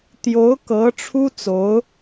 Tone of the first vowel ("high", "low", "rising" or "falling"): rising